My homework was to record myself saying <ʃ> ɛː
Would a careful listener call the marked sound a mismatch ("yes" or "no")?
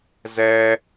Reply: yes